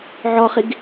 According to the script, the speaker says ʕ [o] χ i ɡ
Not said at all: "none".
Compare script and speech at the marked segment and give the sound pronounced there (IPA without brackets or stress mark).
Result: ɔ